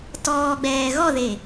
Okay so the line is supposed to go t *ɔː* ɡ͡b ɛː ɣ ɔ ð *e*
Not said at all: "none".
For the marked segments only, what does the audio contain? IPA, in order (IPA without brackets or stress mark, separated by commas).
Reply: ɔː, e